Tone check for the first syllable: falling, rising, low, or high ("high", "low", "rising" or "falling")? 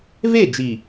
falling